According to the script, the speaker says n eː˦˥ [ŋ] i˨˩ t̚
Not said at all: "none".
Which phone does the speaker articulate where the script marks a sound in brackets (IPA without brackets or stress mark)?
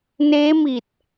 m